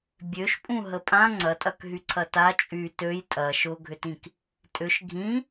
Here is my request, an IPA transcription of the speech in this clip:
bʲ ø ʃ pʼ ũ ɦ ə pʼ ã ŋ͡ǀ ɐ tʼ ɐ k ɦ y ǀʰ ɐ t a t͡ʃʼ y t ø j tʼ ɐ ʃ ʊ ɡʱ ʏ t ĩ k | tʼ ʏ ʃ ɡʱ ĩ

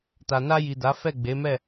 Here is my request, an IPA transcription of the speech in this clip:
t a˨ n a˧ j i˨ d a˨˦ f ɛ˦˨ ɡ͡b e˨˦ m ɛ˦˨

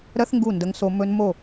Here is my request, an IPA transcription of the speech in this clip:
ɾ ɜ˦ θ ŋ ɡ u˦˨ n d ə˧ ŋ s o˧ m ɵ˧ n m o˦˨

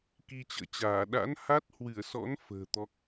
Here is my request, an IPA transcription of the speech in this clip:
k i˧ t͡ɕ ə̰ː˧˨ t͡ɕ aː˧˩ ɗ a̰˧˥ n h a˦˥ t̚ h w ɨ˧˩ ə̯ s ɔ̰˧˥ n f ə̤ː˨˩ t̪ ɔ˦˥ k̚

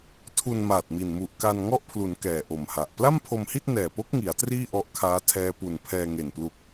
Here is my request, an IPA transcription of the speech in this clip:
tʰ u˧ n m aː˨˩ t̚ m i˨˩ n m u˨˩ ʔ k a˧ n ŋ ɔ˥˩ ʔ pʰ l u˩˦ n k ɛː˨˩ ʔ o˨˩ m h a˨˩ ʔ p l a˥˩ m pʰ o˧ m h i˥˩ t̚ n ɛː˨˩ p o˦˥ k̚ ŋ i˩˦ a̯ t r iː˥˩ ʔ ɔ˦˥ ʔ kʰ aː˦˥ tʰ ɛː˦˥ p u˨˩ n pʰ ɛː˧ ŋ e˨˩ n p l u˨˩ k̚

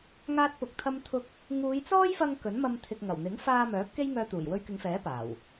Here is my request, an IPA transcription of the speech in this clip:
ŋ aː˥ t̚ p ʊ˧ k̚ t̪ʰ ɐ˥ m t̪ʰ ʊ˥ k̚ | ŋ uː˨˧ j t͡s ɔː˥ j f ɐ˧ ŋ k ɵ˨˥ n m ɐ˧ m t̪ʰ ɪ˨ k̚ ŋ ɐ˨˩ w n̪ ɪ˨˥ ŋ f aː˧ m œː˨˥ p̚ k e˥ j ŋ œː˧ t̪ uː˨˩ j w ɵ˧ ɥ k ɪ˨˧ ŋ f ɛː˨˥ p aː˨˩ w

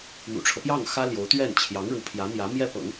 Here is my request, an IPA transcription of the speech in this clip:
n̪ ṵ˨˩ ʈ͡ʂʰ ɤ˦ p j ɑ˥˩ ŋ x ä˥ l j o˧˥ ʊ̯ t̪ ɥ ɛ˥˩ n t͡ɕʰ j ɑ˧˥ ŋ ɻ u˧˥ pʰ j ä˧˥ n̪ j ä˧˥ m j ɛ˥˩ p ɤ̰˨˩˦ ŋ

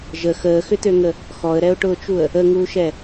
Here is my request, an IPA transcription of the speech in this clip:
ʒ ə x əː x ʏ t̪ ø ŋ ə | x ɔ ə̯ ɾ ɛ ʊ̯ ʈ ʊː t͡ʃ u ə̯ | ə ŋ uː ʃ ɛ

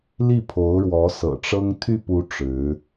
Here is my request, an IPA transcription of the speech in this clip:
l i˥˩ pʰ o˧˥ ʊ̯ ɻ w ɔ˧˥ s ɤ̰˨˩ ʈ͡ʂ ɤ˥ ŋ t̪ʰ y˥˩ p u˧˥ ʈ͡ʂ ɻ̩˧˥

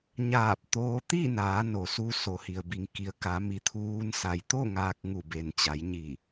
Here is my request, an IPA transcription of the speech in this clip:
ɲ aː˧˩ p̚ t̪ oː˧ t̪ i˥˨ n aː˩˧ n o˩ s u˧ s o˩ h i˩ ə̯ b i˩˧ ŋ k i˩˧ ə̯ k a˩˧ m i˩˧ t̪ʰ uː˧ n s a˩ j t̪ o˥˨ ŋ aː˧ k̚ ŋ u˧˩ b e˩ n t͡ɕ a˩˧ j ɲ i˧˩

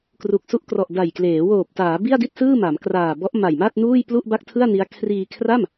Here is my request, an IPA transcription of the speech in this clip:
k r u˨˩ k̚ s u˦˥ ʔ k r ɔ˨˩ ʔ d a˨˩ j k l eː˩˦ w oː˨˩ p̚ t aː˩˦ b i˥˩ a̯ d i˥˩ t̚ s ɯː˥˩ m a˩˦ m k r aː˨˩ b ɔ˦˥ ʔ m a˨˩ j m a˥˩ t̚ n uː˥˩ j p l u˥˩ ʔ b a˥˩ k̚ tʰ ɯ˥˩ a̯ n i˦˥ a̯ kʰ r iː˧ kʰ r a˥˩ m

